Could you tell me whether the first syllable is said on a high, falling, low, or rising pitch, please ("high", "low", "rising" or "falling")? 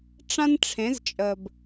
high